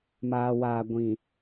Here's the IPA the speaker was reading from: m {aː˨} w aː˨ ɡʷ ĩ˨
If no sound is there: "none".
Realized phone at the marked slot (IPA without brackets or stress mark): aː˨